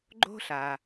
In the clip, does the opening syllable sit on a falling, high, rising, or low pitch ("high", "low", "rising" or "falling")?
high